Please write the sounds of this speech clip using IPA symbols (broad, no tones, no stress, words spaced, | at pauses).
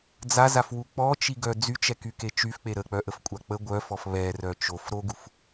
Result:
d͡zazafwu k͡pɔt͡ʃiɡœ d͡zyt͡ʃɛkyke t͡ʃyfk͡pe ɾək͡pœʔəfkʷʼa k͡pə ɡʷœfɔf βɛrœ t͡ʃof ɾoɡuf